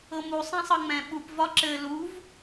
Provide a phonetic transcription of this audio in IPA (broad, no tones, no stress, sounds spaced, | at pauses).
ɤ m u sˤ ɛ̃ sˤ ɤ ŋ͡m ɛ̃ ɓ u p v ɒ ǁ ɘ l u v